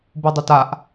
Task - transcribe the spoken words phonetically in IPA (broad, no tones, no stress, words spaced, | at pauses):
budˤɪtaʔ